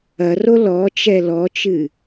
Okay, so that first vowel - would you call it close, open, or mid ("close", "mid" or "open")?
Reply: open